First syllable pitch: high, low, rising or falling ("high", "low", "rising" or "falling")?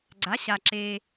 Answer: rising